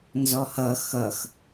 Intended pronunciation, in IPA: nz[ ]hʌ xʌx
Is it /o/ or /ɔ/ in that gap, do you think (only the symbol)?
ɔ